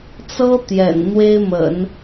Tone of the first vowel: high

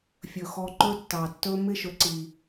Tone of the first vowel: low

